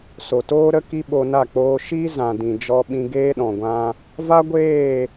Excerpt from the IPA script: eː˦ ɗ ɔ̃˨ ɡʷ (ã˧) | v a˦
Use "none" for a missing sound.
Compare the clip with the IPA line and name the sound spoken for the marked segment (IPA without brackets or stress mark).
ã˧